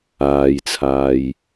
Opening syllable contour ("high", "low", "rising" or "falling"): low